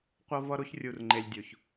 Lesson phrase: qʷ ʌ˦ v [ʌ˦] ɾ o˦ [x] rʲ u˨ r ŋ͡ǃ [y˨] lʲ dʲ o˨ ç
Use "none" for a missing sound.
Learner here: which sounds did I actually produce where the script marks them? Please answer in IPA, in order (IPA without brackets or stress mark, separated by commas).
ʌ˦, ç, e˨